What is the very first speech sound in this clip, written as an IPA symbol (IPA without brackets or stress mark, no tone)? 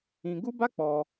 ĩ